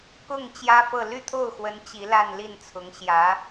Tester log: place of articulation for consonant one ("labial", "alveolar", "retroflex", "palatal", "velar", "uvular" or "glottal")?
velar